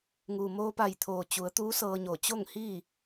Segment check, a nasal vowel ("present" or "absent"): absent